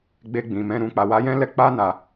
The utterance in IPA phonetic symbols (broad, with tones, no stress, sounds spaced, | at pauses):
ɡ͡b e˧ ɡ͡b ĩ˨ m ɛ̃˧ ɾ ũ˨ k͡p a˨ w a˨˦ j ɛ̃˦ l ɛ˧ k͡p a˦ n a˧